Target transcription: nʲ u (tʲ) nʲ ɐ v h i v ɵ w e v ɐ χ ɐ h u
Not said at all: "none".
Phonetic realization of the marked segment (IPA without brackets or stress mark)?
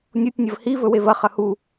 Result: tʲ